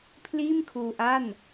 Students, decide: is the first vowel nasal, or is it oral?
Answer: oral